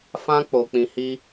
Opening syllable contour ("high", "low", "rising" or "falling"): high